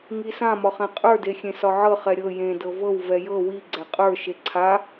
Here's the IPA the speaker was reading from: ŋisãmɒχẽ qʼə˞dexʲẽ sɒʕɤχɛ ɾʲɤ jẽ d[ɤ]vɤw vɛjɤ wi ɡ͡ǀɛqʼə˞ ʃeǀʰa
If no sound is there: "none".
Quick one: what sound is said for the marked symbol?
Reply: ɤ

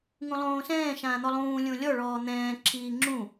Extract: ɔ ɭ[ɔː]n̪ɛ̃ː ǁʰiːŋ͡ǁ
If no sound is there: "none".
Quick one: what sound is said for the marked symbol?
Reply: ɔː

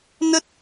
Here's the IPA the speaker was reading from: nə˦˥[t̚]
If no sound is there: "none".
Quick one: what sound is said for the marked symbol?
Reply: t̚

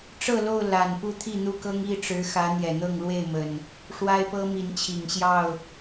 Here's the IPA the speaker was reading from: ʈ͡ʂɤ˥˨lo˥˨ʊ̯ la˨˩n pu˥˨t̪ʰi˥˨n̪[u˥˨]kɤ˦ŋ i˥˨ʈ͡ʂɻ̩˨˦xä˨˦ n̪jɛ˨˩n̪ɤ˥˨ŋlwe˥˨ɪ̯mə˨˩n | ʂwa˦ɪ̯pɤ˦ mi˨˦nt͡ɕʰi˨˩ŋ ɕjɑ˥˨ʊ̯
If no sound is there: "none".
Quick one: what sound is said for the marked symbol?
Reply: u˥˨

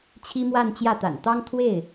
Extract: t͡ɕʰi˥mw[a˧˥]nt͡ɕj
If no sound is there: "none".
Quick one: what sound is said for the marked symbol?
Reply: a˥˧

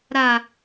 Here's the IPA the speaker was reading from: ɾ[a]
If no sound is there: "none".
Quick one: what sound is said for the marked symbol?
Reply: a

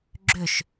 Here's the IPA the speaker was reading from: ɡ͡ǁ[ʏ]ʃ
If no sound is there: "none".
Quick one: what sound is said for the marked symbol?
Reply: ʏ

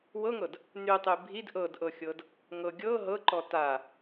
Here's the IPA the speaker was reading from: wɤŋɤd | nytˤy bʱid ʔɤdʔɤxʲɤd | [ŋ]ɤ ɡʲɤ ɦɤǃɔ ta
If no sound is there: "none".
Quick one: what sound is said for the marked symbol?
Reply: ŋ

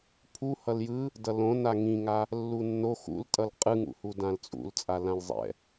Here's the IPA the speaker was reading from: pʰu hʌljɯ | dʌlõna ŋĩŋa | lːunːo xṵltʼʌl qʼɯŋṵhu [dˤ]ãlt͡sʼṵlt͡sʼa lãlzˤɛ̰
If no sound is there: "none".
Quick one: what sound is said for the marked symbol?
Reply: d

